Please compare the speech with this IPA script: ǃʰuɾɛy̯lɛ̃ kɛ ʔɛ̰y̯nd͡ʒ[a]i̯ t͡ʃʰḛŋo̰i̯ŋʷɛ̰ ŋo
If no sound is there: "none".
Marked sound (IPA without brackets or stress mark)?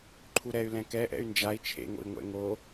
a